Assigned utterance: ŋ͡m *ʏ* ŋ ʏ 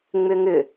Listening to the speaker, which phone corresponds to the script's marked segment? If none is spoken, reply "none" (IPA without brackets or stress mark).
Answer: ʏ